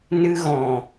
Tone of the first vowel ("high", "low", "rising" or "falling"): high